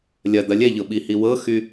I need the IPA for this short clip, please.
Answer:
lʲ ɐ d̪ ɐ lʲ ɛ ʎ ɤ ɓ i h i w ɤ x y

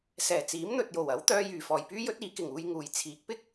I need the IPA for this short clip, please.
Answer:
s ɛː˨˩ t͡s iː˨˥ m n̪ ɵ˨ t̚ j o˨˩ w ɐ˨˥ w t̪ œː˧ j yː˨˩ f ɔː˨˩ j p yː˥ j ɵ˥ t̚ iː˨˧ k ɪ˨˩ ŋ uː˧ j ŋ uː˨˩ j t͡sʰ iː˨˥ k̚ p ɪ˥ k̚

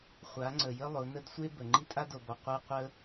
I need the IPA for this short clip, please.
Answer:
χʷ a˨˦ ŋ͡ǀ ə˨ j ə˦ lˠ ʊ˨˦ n ə˦ d sʷ e˦ b ə˨ ŋ͡ǃ i˦ tʼ a˦ d o˨ b ɔ˨ qʷ e˦ qʷ ə˦

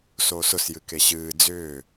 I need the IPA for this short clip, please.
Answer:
s oː s ʊ s j ɨ k e ɕ ɨː d͡z ʏː

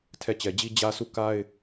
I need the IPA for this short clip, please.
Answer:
tʰ ɛ˦˨ t͡ɕ ɛ˨ d͡ʑ i˦ d͡ʑ ä˦ s u˦˨ k a˦ ɪ̯

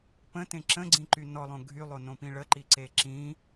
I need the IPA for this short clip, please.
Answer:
p ə̃ t ẽ ǁ ə̃ ɡ͡ǀ ĩ ǃ y n ɔ lˠ õ ɡʱ y lˠ o n õ p ĩ ɭ ə ǃ i ǀ e ǁ ĩ

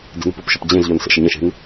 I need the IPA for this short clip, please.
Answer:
d e̤ n ə̤ p ʊ p ʃ ə p d͡ʑ ẽ z ʎ ɔ n s ə̰ ʃ ə ɲ ə̃ ʃ e̤ n

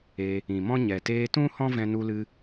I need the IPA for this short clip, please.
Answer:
e˧ | ĩ˨ m ɔ̃˦ ɲ ɛ˨ t eː˧ t ũ˦ h ɔ̃˦ v ɛ̃˧ n u˧ l ɨ˧

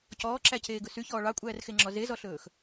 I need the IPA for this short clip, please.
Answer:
c ɔː ǁ æ c eː ɡ ɵ s y ç ɔː ɭ ɑ kʷʼ æː r x e ŋ͡ǁ ɔ z e z ɔ ɬ ɵː x

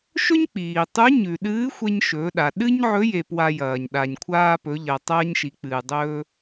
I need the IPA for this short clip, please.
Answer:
ʃ ɵ˥ ɲ k͡p iː˩ tˤ ʉ˧˥ ɲ ʉ˩ ɗ ɨː˧˥ xʷ e˧ ɲ ʃ ɵː˩˧ ɗ a˩ ɗ ɨ˥ ɲ ʕ ɵ˧˥ j e˧ p w a˧ j ɐː˩ ɲ ɗ a˩ ɲ kʷʰ aː˧ p ɵ˩˧ ʎ ɐ˩ tˤ ɐː˧ ɲ ʃ i˩˧ k͡p ɨː˩ dˤ ɵː˧

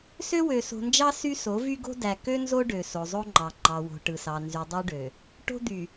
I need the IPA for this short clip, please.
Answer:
s ø˦ w ø˨ s o̤˨ n d͡ʒ ɑ˦ s y˦ s o˨˦ v y˦ ɡ o̤˦ d æ˨ k ø˦ n z o˦ ɖ ø˨ s o˨ zˤ o˦ ŋ͡ǃ ɑ˨ ŋ͡ǃ ɑ˨ w o̤˨ ʈ ɯ˨ s ɑ˨ n z y˨ dˤ ø˦ ɖ ø˨ | ʈ o̤˦ d̪ y˨

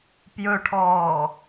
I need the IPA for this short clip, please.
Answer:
p j ɵ ʈʰ ɔː

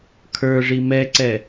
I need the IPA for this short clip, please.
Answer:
kʰ ə˞ ʐ i m ɛ ǀ ɛ

